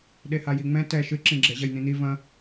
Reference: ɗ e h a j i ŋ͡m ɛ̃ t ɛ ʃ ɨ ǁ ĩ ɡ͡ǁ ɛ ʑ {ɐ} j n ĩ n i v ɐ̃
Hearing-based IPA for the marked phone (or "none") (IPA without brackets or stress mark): ɐ